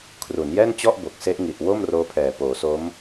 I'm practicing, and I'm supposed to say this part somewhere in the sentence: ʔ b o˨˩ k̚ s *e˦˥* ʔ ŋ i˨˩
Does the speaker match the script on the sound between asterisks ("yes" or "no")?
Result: yes